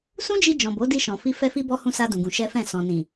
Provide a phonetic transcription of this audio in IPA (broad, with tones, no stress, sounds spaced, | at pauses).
s ũ˦ d͡ʒ i˧ d͡ʒ ɔ̃˨ b o˨˦ d i˧ ʃ ɔ̃˨ f i˧ f ɛ˦ f i˦ b ɔ˦ h ũ˧ s a˧ d ũ˧ ɡ ũ˧ ʃ ɛ˦ f ɛ̃˦˨ s ɔ̃˨ n ĩ˨